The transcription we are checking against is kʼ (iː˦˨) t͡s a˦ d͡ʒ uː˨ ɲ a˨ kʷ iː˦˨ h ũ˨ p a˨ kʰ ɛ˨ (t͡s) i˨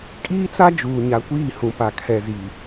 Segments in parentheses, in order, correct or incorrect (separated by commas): incorrect, incorrect